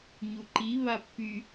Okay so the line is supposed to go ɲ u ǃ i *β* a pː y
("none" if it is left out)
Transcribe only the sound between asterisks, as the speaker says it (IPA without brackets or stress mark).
β